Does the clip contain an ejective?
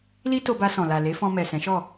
no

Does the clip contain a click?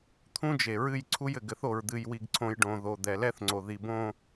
yes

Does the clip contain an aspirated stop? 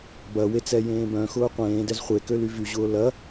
no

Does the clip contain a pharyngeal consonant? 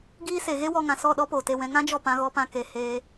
no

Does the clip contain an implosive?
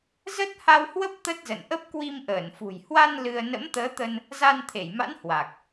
no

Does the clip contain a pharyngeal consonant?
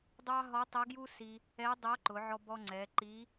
yes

